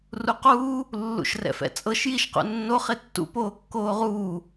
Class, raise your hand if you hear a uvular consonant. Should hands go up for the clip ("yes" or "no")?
yes